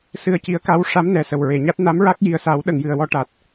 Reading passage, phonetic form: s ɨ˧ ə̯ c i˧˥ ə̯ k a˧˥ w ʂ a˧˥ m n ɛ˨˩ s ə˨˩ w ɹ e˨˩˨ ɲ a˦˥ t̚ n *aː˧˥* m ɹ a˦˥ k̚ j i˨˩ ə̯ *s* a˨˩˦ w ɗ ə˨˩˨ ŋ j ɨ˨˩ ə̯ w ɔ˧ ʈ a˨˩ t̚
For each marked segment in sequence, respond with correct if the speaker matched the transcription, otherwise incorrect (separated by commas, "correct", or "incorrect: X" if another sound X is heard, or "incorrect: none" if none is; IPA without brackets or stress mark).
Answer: incorrect: a˧˥, correct